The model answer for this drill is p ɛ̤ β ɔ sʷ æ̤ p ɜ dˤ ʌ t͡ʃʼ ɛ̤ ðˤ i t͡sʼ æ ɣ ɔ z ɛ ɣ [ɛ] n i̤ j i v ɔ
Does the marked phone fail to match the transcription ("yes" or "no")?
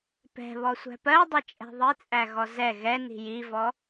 no